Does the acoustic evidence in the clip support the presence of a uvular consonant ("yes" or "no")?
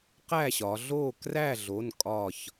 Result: yes